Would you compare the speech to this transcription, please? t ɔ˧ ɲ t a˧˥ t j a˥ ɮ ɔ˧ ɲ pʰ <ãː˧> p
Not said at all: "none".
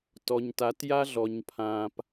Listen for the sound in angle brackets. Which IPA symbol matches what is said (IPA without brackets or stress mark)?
ãː˧